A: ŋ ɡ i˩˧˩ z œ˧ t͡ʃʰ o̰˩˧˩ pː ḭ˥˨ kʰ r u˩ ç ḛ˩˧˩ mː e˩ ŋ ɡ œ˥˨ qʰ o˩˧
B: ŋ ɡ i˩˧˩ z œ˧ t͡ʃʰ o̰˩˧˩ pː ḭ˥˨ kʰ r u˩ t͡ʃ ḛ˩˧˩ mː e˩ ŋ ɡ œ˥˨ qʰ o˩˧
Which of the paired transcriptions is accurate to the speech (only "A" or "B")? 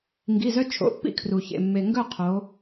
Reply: A